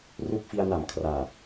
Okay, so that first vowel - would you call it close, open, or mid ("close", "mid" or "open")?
close